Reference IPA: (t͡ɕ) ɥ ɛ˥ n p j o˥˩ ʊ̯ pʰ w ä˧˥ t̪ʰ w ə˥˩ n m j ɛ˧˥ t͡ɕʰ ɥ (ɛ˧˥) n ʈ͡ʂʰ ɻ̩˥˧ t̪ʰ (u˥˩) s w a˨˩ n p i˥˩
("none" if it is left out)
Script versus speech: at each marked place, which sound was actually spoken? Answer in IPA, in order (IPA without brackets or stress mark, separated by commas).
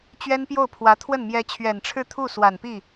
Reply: t͡ɕ, ɛ˨˩, u˥˩